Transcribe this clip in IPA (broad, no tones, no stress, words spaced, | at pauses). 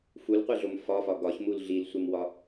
fulqʷeɮom fɒfɒ ɡɒçmul ɮilsʷemwɒ